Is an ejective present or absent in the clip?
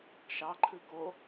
absent